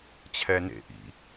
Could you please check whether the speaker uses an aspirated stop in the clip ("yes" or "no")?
yes